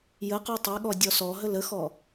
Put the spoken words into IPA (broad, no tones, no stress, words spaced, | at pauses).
jə qutˤɛɠɔ dʲɔsɔɦə ləxɔ